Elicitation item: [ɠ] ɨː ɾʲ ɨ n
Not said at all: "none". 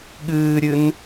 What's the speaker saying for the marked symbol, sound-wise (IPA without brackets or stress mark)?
ɠ